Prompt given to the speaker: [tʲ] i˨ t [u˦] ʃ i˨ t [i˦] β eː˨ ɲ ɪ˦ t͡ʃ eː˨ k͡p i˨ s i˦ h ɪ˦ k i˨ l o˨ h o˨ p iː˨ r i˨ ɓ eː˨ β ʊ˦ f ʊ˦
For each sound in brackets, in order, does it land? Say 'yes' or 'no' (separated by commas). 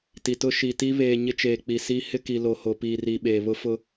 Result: no, no, yes